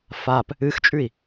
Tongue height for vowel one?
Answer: low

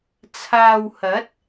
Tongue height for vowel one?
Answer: low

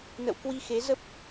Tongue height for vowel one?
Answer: mid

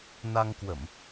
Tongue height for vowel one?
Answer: low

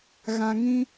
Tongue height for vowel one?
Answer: low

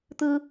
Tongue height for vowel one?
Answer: high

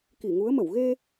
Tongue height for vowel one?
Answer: high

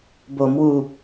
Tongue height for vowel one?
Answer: mid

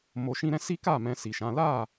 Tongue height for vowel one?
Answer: mid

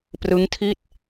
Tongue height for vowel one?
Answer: high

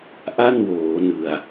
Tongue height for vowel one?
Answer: low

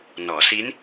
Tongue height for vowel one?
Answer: mid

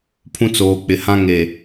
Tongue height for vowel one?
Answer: high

